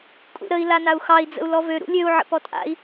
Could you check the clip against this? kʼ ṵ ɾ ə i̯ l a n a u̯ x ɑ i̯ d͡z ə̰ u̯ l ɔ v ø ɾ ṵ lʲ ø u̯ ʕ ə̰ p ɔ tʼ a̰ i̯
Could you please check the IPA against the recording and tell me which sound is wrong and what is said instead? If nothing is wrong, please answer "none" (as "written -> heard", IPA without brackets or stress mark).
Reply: none